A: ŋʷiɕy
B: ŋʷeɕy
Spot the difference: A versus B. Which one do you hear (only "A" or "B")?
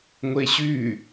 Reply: B